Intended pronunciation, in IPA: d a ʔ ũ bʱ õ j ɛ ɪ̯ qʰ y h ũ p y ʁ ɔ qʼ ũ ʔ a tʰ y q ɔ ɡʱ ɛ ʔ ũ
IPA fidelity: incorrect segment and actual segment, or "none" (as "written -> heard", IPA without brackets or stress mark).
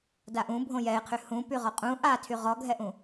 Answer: q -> ʁ